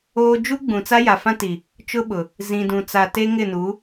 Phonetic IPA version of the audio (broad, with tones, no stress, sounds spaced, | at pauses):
oː˦ d͡ʒ u˦ ɡ͡b ũ˨ t͡s a˦ j a˨ f ã˦ t i˨ | t͡ʃ ʊ˦ ɓ ʊ˨ | z ĩ˨ d ũ˨ t͡s a˨ t e˦ ŋ ɪ˦˨ n u˨˦